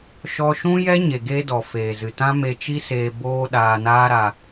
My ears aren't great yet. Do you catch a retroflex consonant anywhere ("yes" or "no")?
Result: no